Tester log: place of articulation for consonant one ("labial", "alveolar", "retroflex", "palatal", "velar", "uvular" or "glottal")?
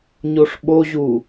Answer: palatal